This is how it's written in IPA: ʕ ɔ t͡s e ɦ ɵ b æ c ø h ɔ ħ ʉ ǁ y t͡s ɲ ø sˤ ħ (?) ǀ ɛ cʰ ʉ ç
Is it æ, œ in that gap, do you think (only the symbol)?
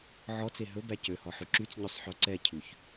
œ